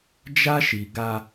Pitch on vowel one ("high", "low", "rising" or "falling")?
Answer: high